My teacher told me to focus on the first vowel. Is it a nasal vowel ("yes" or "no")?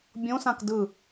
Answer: yes